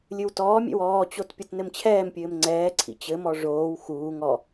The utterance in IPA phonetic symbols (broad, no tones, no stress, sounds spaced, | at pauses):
lʲ ɨ w t ɔː mʲ ɛ̰ w ɔː t͡ɕ o t pʲ o t n ɘ m t͡ɕʰ ɛː m pʲ ɘː m ŋ͡ǀ ɛː ǀʰ ḭ t͡ɕ ɘ m ɔ ʐ oː w x uː ŋ ɔ